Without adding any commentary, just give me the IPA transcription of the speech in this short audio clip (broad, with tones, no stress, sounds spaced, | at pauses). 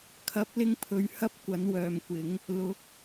kʰ ɐ˨˥ p̚ l ɪ˧ ŋ pʰ ɵ˨ ɥ h ɐ˥ p̚ kʷ ɐ˨˥ n w œː˨ m kʷ ɪ˨˥ ŋ | l ʊ˨˥ k̚